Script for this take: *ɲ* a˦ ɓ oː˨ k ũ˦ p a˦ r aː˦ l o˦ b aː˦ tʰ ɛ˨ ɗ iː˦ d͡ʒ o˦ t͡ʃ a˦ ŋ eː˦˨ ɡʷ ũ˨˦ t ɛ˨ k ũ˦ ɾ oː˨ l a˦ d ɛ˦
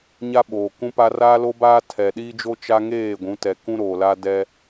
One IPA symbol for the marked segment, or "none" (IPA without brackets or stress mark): ɲ